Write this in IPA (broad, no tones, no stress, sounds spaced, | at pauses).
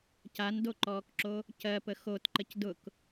c a n d o ǃ ɔː k ǁ o | c ɜ p ə x o t ǃ ə c d ʊ k